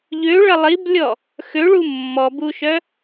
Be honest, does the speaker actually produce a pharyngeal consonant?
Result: no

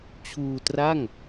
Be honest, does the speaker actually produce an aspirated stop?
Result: yes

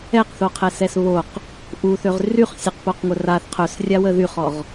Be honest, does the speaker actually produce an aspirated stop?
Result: yes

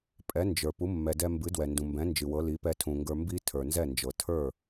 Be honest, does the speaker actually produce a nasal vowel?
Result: yes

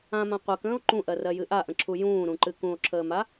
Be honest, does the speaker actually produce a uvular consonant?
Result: yes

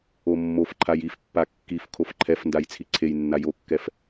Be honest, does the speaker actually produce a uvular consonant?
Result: no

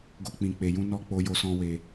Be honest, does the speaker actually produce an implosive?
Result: no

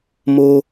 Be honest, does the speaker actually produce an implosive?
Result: no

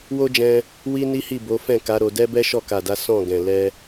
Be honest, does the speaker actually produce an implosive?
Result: no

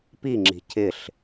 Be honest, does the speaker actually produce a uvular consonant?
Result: no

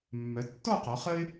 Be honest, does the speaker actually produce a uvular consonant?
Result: yes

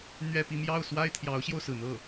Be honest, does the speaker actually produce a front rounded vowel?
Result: no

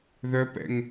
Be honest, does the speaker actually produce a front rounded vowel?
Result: yes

